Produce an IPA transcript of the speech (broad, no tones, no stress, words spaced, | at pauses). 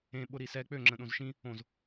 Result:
ẽɓʊ ɾisɛ k͡pøŋ͡ǁə̃ ɗõzʃĩ | õz